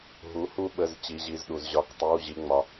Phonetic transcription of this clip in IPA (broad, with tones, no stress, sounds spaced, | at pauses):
ɦ u˩˥ h u˧ ɓ ə˩˧˩ z t͡ɕ i˩˧ ʑ i˩˧˩ z ɗ u˩ z ʑ ɒ˩˧˩ k tˤ i˩˧˩ w ʑ i˩˧ ŋ͡m ɒ˩